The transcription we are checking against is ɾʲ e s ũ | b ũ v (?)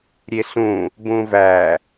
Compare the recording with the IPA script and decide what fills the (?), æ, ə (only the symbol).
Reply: æ